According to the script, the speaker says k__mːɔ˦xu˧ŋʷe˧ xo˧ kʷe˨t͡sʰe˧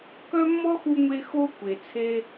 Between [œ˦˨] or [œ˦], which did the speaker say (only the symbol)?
œ˦